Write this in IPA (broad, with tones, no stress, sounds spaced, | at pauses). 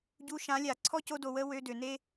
ɟ u˧ ʃ ã˨˦ lʲ a˨ ǀʰ ɔ˦ c o˧ d o˨ w ə˦ w ø˧ d ø˨ n e˦